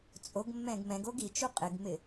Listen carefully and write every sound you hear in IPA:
t͡sʼ o ɡ mː ɛ̃ ɡ m ɛ̃ ɡ o ɡ i t͡ʃ u qʼ ɪ ɡ m ɪ

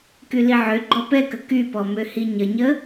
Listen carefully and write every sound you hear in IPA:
k y l i ʕ ø ɡ͡ǃ ɔ p ɛ k ə k y p ɔ m ø h i ɲ ə ɲ ə

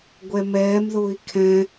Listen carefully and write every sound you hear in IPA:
ɡʷ ɛ m ɛː m ð ʊː i̯ kʰ ɛ̃

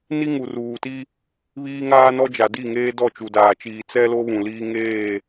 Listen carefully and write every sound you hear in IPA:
n i˦ ŋ u˨ r uː˨ t i˦ | β iː˦ ŋ aː˦ n ɔ˦ d͡ʒ a˨ d i˦˨ ŋ eː˦ d ɔ˦˨ t͡ʃ u˨ d aː˨ t͡ʃ iː˨ t͡s ɛ˦ l o˦ β ũ˨ l iː˦ ŋ eː˦˨

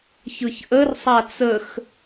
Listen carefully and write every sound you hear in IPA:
ç ɯ ç ʔ ə r sˤ a t͡s ə x

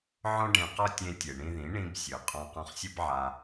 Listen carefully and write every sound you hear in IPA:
ʕ ɔ̃˦ ɖ ẽ˧ q ɔ˦ tʲ ẽ˧ tʲ e˨ ɳ ĩ˧ ð ĩ˨˦ ɳ ĩ˦ b sʲ ɯ˨ qʼ ɔ̃˧ q ɔ̃˧ χ sʲ ɯ˦ b ʕ a˧

